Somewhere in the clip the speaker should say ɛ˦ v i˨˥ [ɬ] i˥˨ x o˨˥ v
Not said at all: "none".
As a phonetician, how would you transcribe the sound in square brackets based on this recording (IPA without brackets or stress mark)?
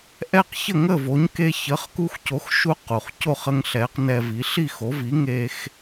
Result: ɬ